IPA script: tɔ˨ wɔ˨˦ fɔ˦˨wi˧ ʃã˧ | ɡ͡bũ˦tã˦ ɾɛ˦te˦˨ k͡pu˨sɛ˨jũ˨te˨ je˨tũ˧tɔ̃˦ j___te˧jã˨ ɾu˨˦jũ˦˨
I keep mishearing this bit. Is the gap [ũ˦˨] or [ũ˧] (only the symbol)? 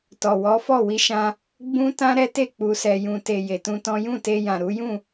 ũ˦˨